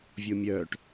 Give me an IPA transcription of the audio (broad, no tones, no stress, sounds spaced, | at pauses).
vʲ o mʲ œː ʈ